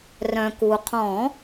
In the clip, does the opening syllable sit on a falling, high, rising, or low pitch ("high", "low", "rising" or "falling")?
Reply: low